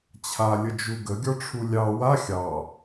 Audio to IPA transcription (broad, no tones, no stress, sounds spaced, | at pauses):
t͡ɕʰ a lʲ ə d͡ʒ u ɡ ə ɡʲ ɔ ʈ͡ʂʰ u lʲ ɑ w a xʲ ɑ